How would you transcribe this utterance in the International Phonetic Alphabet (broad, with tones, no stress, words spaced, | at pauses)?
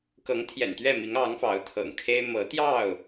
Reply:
kɤ˨˦ŋt̪ʰjɛ̰˨˩nt̪ɥɛ˥˨mi˨˦ŋ ɑ˨˦ŋfɑ˨˦ʊ̯ t̪ʰɤ̰˨˩ŋkʰe˦ɪ̯ mɤ˨˦t̪jɑ˥˨ʊ̯